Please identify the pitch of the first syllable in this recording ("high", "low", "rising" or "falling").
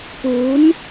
rising